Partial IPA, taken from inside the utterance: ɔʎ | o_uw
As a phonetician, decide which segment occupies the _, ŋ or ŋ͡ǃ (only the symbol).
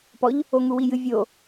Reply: ŋ